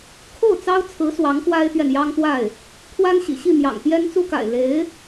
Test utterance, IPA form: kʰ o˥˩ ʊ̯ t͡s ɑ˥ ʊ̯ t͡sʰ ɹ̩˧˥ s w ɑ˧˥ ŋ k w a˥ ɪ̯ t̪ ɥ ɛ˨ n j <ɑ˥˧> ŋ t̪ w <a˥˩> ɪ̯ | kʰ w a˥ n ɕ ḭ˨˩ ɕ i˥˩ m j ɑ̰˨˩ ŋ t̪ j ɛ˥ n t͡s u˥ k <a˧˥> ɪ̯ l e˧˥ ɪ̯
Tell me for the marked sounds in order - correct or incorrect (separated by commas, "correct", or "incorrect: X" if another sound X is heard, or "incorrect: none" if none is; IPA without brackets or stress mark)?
incorrect: ɑ˥, correct, incorrect: a̰˨˩